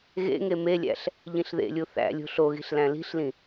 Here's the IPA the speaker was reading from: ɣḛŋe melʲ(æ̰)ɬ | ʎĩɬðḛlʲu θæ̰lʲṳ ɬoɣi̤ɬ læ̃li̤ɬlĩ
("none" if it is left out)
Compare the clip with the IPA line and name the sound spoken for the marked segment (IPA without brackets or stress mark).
æ̰